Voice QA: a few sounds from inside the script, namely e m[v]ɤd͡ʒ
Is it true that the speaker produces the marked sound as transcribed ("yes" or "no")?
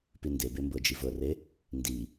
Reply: no